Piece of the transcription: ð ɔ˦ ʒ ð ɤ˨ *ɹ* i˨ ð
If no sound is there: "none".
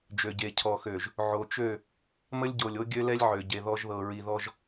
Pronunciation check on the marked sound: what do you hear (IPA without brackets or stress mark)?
ɹ